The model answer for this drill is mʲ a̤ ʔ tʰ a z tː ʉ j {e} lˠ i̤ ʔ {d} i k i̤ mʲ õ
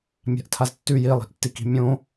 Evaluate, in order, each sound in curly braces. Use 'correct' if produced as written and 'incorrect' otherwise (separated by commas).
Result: incorrect, incorrect